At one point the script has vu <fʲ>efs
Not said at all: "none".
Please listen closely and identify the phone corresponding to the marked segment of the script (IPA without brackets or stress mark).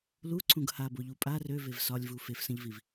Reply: f